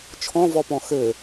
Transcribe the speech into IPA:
t͡ʃʰɔ̃vɔpɔ̃ xɘ

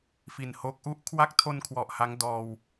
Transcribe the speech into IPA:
fi˨˩nho˦˥k̚ʔu˥˩ʔ kʰwa˦˥k̚tʰo˧n kʰwɔ˨˩ʔha˦˥ŋdɔː˧w

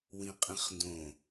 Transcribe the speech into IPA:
wĩqʼĩχndõ

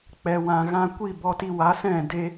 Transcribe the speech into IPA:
k͡pɛ˨wã˨ ɣã˧kʷi˦˨bɔ˧ti˧ wa˨˦sɛ̃˦˨ de˦

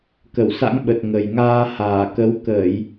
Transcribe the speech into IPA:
kə˧˩wsa̰˧˥ŋɓə˨˩t̚ ŋə˨˩jŋaː˧ haː˧˩kə˨˦w kəː˧˩˨j

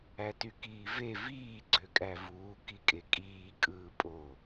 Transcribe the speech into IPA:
ætykiːve viː ɡ͡ǀøkʼævuː kikʼekʼiː kʼɯːpʼo

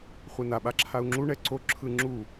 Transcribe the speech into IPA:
χʷena ɓaǁʰau̯ŋ͡ǁu ɳɛǀo ǁʰɯŋ͡ǁu

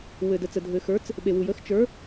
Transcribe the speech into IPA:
wɘ˩də˩t͡sə˩ dʱɘ˩xə˞˩˥t͡s | ɓe˩wu˩jə˩˥x t͡ʃə˞˩˥

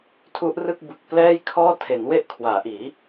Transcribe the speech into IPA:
tʰu˦˥ʔrɯ˥˩k̚ bɯ˨˩k̚ plɛː˥˩jkʰɔː˥˩ tʰe˩˦nwe˦˥ʔkʰwaː˩˦ʔiː˩˦

